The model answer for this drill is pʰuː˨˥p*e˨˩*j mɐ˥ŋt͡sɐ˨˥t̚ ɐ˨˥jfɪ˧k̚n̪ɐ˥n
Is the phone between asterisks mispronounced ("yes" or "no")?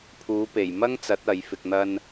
no